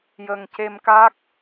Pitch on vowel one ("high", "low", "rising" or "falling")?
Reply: low